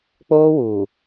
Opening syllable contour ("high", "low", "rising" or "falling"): high